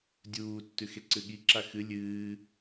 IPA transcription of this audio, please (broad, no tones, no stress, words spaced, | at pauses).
dʲuːtːʉx eǀɨɠiǁa xɨ lʲɨː